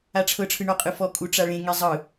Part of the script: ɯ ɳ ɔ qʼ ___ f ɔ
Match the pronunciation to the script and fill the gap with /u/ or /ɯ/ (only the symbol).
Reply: ɯ